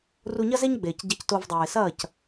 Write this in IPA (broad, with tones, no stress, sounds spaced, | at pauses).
r u˧ ɲ ɐ˦ z e˦ ɲ ɡ͡b eː˨ c ɟ e˧ c t o˧ v dˤ uː˨ ɪ̯ s ɐː˦˨ c